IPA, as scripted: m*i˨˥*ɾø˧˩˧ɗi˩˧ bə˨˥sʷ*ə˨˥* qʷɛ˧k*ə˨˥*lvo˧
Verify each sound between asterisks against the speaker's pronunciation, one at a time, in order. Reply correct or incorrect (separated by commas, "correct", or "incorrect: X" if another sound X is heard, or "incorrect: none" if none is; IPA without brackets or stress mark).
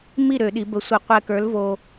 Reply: incorrect: i˥˨, incorrect: ə˧˩˧, incorrect: ə˞˨˥